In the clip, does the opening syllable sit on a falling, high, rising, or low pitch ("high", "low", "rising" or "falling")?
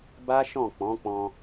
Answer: high